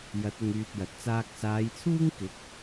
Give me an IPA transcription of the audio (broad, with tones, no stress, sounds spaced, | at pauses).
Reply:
j ɐ˨˥ t̚ ʊ˧ ŋ yː˧ t̚ j ɐ˨ t̚ t͡s aː˧ k̚ s aː˨˧ j t͡sʰ uː˥ ŋ k ɪ˨˥ k̚